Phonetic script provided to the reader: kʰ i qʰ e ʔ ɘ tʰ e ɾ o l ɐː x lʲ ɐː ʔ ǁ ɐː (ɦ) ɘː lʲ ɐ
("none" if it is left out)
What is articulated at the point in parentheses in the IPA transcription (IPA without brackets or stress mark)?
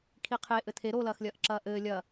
ʔ